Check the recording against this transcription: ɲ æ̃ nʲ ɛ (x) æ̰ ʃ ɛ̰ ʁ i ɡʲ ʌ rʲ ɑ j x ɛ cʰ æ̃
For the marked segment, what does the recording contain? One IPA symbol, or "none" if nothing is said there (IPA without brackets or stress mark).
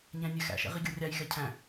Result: x